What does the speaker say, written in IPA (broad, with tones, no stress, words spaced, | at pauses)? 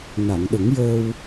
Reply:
na˨˩˨ŋɗə˨˩˦ŋjəː˧w